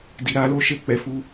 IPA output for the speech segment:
d i˨ ɾ a˨˦ l o˦ ʃ e˦˨ k͡p ɛ˨ f u˨˦

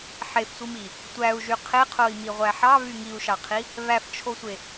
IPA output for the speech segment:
ħ e f sʷ i m i | tʷ æ u̯ ʒ y qʰ e qʰ o i̯ m i ʁʷ æ ħ ɑ β y ŋ i u̯ ʃ ɑ qʰ i | β æ f t͡ʃʰ o sʷ e

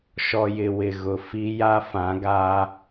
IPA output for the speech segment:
ʃ ɔ˨ j ɪ˨ w ɪ˨ ɣ ʊ˨ f i˦ j a˦ f ã˨˦ ɡ a˦

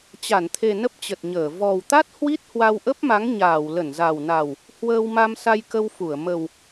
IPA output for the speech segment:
t͡ɕ a˧˩ n t̪ʰ e˨˩ n ə˦˥ p̚ t͡ɕ ə˨˩ t̚ ɲ əː˧˩ v ɔ˨˩ w t̪ a˦˥ t̚ h w i˦˥ t̚ h w a˧ w ʔ ə˦˥ p̚ m a˨˦ ŋ ɲ aː˧˩ w l ə˧˩ n z a˨˩ w n a˨˩ w | h w əː˧ w m a˧ m s a˧ j k ə˧ w f u˧˩ ə̯ m ə˨˩ w

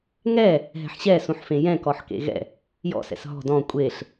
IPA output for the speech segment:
ŋ ɛ | ɦ ɛ̤ ħ ɕ ɛ s ũ ħ f ẽ j ɛ̃ k ɔ ħ k ḛ ɣ ɛ̰ | j ɔ̰ s ɛ̰ s ɦ ɔ̤ d ɔ̃ kʷʼ e ɬ

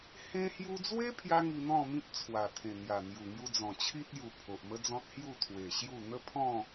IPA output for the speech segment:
h ẽ˧ h j u˧ d͡z w e˦ pʰ j a˦ ŋ i˧ n̪ ɔ̃˥˧ m ĩ˦ p̚ t͡sʰ w a˨˩ t̪ʰ ẽ˨˩ n̪ j a˨˩ n̪ j u˨˩ ŋ j u˧ d͡z ɔ̃˨˩ t͡ɕʰ i˦ t̚ j u˨˩ pʰ o˨ ʔ m ə˦ d͡z ɔ̃˦ t̚ h j u˥˧ t̪ʰ w e˨˩ ɕ j u˥˧ n̪ ə˦ pʰ ɔ̃˥˧

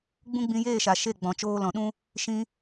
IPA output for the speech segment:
ɡ͡b ũ˦ ɡ͡b ĩ˧ j eː˦˨ ʃ a˨ ʃ e˦˨ ɡ͡b ɔ̃˨ t͡ʃ oː˧ l ɔ̃˨ ɗ ũ˦ | ʃ ĩ˧

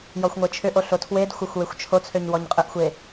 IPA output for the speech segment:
j ɔ xʷ ŋʷ e t͡ʃʰ ʏ ʔ o ɬ o tʰ w e d xʷ ə xʷ w e xʷ t͡ʃʰ o t͡sʰ ø ɲ w ɔ ɲ qʼ ɨ ʔ xʷ e

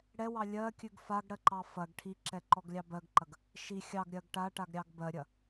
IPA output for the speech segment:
ɽ ɛ w ɑ lʲ ɜ kʲ ʉ ɡ f a ɡ ɽ ɜ ǃ ɑ f ɐ ɡ ʈʰ i ǁ ɛ ǃ ɔ ɡ lʲ ɑ b ɜ ɡ ǃ ɐ ɡ | ʃ i xʲ ɑ ɡ ɾʲ ɜ ɡ ʈ a ʈ a ɡ ɾʲ ɑ ɡ b ɜ ɾʲ ɐ

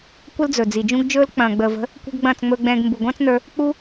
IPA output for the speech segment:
kʷ ə˦ l d͡z ɵ˨ d͡z i˨ d͡ʒ ũ˦ ɡ d͡ʒ ɵː˦ l k͡p ɐ̃ː˨ ɡ͡b əː˨ v ə̤˨˦ | kʷ ɛ̤˦ ɡ ɡ͡b ɐ̃ː˦˨ t͡s ŋ͡m ɵː˧ ɡ͡b ɛ̃ː˧ ɡ m b u˨ ɡʷ ɐ̃ː˦ t͡s n ə˞˧ | k͡p u˦

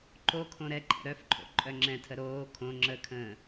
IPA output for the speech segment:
ǃ o kʰ õ ɾ ɛ ǃʼ ɛ̰ ɾ œ f ǃʰ o̰ ǃʼ œ ŋ͡ǁ ɛ̃ tʰ ə ɾ oː kʰ õ ŋ͡ǁ ə kʰ ə̃ː

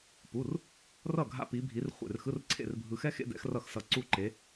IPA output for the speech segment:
p u˧˥˧ r | r ʌ˥˨ ɡʱ a̰˥ p i˧˥ bʱ i˧˥ r χʷ ḛ˥˨ r x ɯ˧˥˧ r ǀʰ ḛ˥˨ r bʱ ɯ˧ x ɛ˥ x ḛ˥ d ɛ̰˧˥ x r ʌ˥˨ x s ʌ˧ ǀ u˥˨ ǃ e˧˥

